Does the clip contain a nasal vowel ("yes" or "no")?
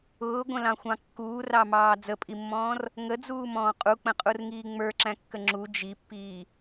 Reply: yes